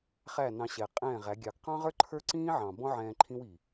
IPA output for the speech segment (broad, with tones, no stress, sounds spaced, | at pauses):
χ æ˦˨ n ɑ̃˧ ɕ ɛ˨ qʼ ɛ̃ː˦˨ ʁ æ˨˦ ɡʲ ɑ˨ ɡ q ɑ̃˦ ʁ ə˞˦ ǃʰ ə˞˦ ǀ ĩː˦ ʕ ɑ̃˨ b ɔ̃˦ ʕ ɛ̃ː˧ ǃʰ ĩ˦ w i˨